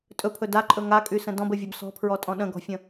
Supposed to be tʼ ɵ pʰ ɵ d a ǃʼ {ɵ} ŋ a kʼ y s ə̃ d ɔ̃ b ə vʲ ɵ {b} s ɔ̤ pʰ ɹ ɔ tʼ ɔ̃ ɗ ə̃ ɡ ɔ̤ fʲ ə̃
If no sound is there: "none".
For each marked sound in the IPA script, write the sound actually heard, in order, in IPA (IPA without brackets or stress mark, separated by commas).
ɵ, b